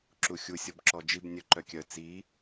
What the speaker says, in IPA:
ǁ u xʲ u sʲ ɔ b ǁ ɔ d͡ʒ i b nʲ œ ǃ œ kʲ œ t͡s i

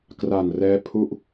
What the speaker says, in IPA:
k r a˨˩ n r ɛː˧ pʰ u˥˩ ʔ

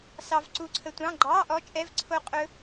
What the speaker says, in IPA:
s ɑ˧ v ǀ u˧ ǀʰ ə˧ tʷ ɑ̃˧˥˧ ɡ͡ǃ ɑ˧˥˧ ʔ ɔ˦˥ t͡ʃʼ ɛ˧˥˧ v ǀʰ o˦˥ qʼ ɵ˦˥

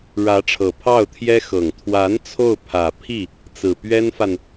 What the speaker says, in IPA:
ɻ ä˧˥ ʈ͡ʂʰ ɤ˨˩ pʰ ɑ˥˩ ʊ̯ t̪ʰ j ɛ˥ x ɤ˨˩ ŋ t̪ʰ w a˧˥ n t͡sʰ o˥˩ ʊ̯ pʰ ä˨˩ pʰ i˥˩ | t͡s ɹ̩˨˩ p ɥ ɛ˥ n f a˨ n

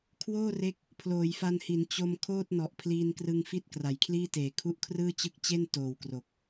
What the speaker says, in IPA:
kʰ w oː˥˩ r e˦˥ k̚ | pʰ l oː˩˦ j f a˧ n h i˩˦ n t͡ɕ o˧ m kʰ oː˥˩ t̚ n ɔ˨˩ ʔ pʰ l iː˧ n k r ɯ˧ ŋ f i˥˩ t̚ k r a˩˦ j kʰ l iː˥˩ t eː˨˩ kʰ u˦˥ ʔ kʰ r ɯː˥˩ t͡ɕ ɯ˦˥ k̚ t͡ɕ e˥˩ n t oː˨˩ w k r o˨˩ k̚

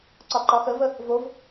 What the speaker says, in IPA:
ǀ ɒ ǃ ɒ x ə v ə | v o v

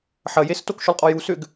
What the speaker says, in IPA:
ħ ɐ j e s t o k ʃ ʏ lˠ qʼ ɔ j u s ʏ ɡ

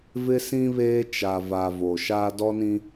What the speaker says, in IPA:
v ɪ˦ s ĩ˦ β eː˦ t͡ʃ a˨ v a˨ v o˨ ʃ a˦ d ɔ˦ n ĩ˦

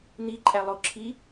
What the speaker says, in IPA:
n̪ i ǃʼ æ lˠ o ǁʰ i

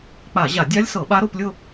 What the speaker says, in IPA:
k͡p a˧˩˧ ʑ a˧˩˧ dʲ a˦˥ lʲ s ɤ˧˩˧ ɓ a˦˥ ɾ o˥˧ p lʲ ʊ˥˧

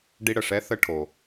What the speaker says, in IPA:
ɖ i˧ ɽ ə˩ ʂ ɛ˧˥ θ ə˧ ʈʰ o˩

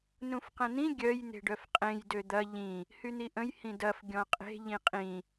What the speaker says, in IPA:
n ũ f q ə̃ n̪ ĩ ɡʲ œ j n̪ e̤ ɖ œ f qʼ ẽ j d ø d̪ ɐ ʎ ĩ | h y n̪ i ʔ ə̃ j h ĩ d ɐ f ɡʲ ɔ̃ qʼ e̤ ʎ ĩ qʼ ĩ

